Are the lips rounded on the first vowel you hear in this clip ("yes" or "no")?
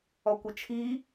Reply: yes